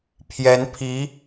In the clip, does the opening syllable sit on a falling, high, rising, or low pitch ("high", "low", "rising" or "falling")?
rising